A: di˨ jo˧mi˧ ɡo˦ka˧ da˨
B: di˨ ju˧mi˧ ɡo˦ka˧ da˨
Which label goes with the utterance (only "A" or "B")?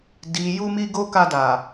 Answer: B